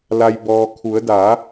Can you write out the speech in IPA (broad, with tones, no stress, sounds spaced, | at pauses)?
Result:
l a˩ j b ɔː˩ kʰ u˩˧ ə̯ d a˩˧